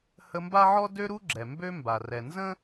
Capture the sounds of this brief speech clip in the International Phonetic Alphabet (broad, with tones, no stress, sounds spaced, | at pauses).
h ə˦ m b a˥ ʕ ɔ˥ d ø˦ ɾ u˦ ɡ͡ǁ ɛ˩ m b ø˦ m b a˩ r ɛ˩ n z ə̃˥